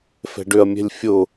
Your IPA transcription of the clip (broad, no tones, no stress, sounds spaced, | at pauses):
f ɛ̤ ɖ ʏ ɐ̯ mʲ ɛ̤ lʲ fʲ ʊ